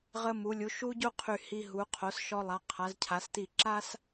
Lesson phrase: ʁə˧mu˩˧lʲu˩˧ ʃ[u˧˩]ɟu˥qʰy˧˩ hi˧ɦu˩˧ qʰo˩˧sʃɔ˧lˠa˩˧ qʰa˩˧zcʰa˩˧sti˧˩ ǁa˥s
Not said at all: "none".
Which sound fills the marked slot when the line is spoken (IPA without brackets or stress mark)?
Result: u˥